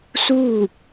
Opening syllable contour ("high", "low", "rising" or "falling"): falling